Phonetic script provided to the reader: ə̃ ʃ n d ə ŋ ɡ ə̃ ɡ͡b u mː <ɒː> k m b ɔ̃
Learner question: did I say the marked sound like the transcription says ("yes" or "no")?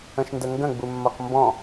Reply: no